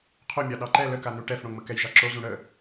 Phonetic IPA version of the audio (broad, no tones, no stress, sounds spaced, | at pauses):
qʰ o mʲ ɑ ɗ ɑ ǃ ɛ l ə k a n u ʈ ɛ f ɽ õ ŋ͡m ə k ɛ j ʒ ɑ ǁ o z ũ ɽ ə